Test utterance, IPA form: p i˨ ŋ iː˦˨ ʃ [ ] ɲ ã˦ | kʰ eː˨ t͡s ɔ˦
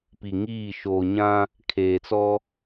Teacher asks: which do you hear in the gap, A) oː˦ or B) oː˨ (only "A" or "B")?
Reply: B